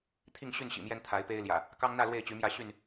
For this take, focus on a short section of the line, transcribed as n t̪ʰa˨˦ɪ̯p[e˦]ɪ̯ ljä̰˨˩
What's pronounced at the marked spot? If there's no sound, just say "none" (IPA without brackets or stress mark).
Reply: e˦